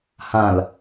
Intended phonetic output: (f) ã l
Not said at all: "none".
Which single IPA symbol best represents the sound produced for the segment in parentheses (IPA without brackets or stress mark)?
h